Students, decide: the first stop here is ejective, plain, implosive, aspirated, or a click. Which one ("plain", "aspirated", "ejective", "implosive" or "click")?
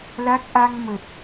plain